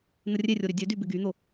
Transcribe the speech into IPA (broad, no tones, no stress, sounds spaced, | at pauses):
n̪ ə rʲ e rʲ o ɾ y dʲ ø d y b ɪ ɡ y n̪ o